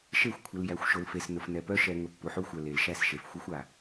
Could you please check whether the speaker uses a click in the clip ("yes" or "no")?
no